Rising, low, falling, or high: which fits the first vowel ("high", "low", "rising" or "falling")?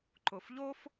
low